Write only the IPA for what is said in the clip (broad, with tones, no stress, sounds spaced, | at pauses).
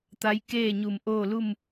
t̪ a˧˥ j k eː˥˨ ɲ u˧˩ m ʔ oː˥˨ l u˥˨ m